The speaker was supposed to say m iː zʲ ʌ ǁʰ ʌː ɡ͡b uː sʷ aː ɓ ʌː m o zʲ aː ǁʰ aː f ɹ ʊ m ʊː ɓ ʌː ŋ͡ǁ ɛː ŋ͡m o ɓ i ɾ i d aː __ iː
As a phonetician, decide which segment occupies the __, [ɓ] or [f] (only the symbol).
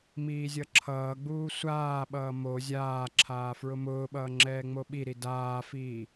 f